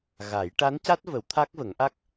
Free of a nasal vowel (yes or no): yes